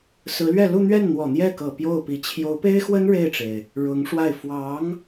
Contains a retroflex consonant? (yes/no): yes